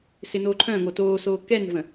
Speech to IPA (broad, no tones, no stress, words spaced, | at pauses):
sɪnoːǃʰœ̃ŋo toː soːkɛnvə̃